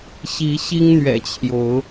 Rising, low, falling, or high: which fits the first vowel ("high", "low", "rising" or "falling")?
rising